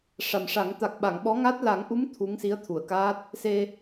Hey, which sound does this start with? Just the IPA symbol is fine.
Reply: ʂ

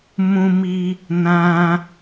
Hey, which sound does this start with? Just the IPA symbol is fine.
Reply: m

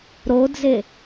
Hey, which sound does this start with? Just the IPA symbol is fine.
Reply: ɾ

